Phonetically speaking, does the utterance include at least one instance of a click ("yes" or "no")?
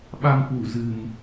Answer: no